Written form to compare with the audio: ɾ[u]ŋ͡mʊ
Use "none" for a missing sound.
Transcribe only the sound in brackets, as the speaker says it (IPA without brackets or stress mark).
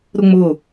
ʊ